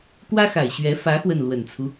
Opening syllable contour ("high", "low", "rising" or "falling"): high